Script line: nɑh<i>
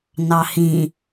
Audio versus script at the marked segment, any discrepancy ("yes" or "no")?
yes